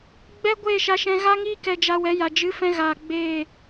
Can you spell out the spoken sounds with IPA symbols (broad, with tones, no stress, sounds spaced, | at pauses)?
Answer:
ɡ͡b ɛ˦ ɡʷ eː˦˨ ʃ a˧ ʃ ɛ̃˧ ɣ a˦ ŋ iː˦ k ɛ˧ d͡ʒ a˧ w ɛ˨˦ j a˨ d͡ʒ ɨ˨˦ f ɛ̃˧ ɣ a˨ ɡ͡b eː˦˨